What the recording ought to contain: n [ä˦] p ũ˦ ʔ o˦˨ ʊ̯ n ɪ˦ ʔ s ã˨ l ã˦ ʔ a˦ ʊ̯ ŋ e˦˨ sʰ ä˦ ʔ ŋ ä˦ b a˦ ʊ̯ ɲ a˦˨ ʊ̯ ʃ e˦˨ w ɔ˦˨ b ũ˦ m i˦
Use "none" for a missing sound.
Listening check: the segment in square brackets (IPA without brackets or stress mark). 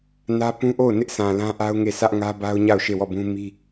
ä˦